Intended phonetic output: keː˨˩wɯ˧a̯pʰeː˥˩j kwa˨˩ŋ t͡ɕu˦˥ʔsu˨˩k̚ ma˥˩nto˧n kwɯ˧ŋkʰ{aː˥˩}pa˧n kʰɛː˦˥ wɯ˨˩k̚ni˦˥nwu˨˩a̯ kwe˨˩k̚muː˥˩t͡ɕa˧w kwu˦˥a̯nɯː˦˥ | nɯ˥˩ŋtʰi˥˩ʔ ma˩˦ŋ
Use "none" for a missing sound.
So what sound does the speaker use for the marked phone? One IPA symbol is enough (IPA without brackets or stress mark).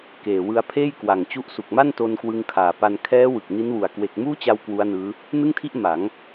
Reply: aː˨˩